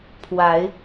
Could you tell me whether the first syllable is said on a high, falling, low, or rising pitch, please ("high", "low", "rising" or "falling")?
rising